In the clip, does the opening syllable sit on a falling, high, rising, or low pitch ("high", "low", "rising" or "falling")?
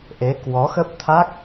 rising